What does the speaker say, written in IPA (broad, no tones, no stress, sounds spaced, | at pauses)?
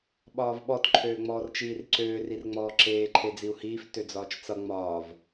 ɓ ɒː v ɓ ɔ t ǃʰ øː ŋ͡m ɔː r t͡ʃ iː r ǀ øː r i r ŋ͡m ɔː ǁ eː ǃʰ e d͡z i u̯ h iː f t ø d͡z ɒː t͡ʃ t͡s ʌ ŋ͡m ɒː v